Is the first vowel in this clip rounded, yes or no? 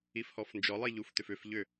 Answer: no